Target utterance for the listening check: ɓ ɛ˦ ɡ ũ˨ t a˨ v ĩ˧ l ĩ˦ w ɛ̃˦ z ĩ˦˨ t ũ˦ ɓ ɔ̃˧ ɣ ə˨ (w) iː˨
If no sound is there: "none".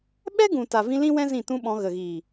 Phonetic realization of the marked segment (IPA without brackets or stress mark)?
ɣ